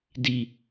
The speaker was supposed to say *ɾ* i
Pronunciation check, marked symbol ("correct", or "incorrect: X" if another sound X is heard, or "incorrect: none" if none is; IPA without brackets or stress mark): incorrect: d